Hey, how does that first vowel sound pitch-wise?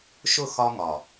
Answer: falling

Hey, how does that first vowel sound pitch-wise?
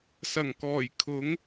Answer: low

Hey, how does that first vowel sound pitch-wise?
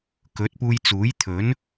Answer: rising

